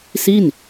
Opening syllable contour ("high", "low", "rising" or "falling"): falling